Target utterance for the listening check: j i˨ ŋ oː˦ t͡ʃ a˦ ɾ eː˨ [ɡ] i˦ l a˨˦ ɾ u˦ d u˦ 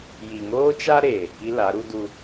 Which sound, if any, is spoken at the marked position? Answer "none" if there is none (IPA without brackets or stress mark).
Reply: k